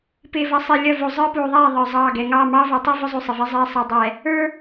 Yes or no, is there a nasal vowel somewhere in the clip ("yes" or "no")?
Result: no